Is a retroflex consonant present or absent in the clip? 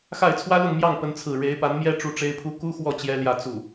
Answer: present